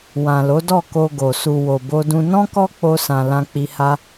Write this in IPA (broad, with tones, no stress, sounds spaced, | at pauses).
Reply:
w ã˨ l o˨˦ d ɔ˦˨ k o˧ ɡ o˨ s u˨ w o˨ b o˧ d ũ˧ n ɔ̃˦ k ɔ˦ k͡p o˧ s ã˨ l ã˧ k͡p i˧ h a˦